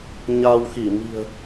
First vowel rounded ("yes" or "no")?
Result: no